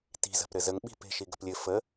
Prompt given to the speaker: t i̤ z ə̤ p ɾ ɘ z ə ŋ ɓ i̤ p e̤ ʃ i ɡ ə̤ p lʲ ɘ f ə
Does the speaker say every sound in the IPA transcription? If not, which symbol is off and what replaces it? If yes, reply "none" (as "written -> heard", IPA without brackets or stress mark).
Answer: none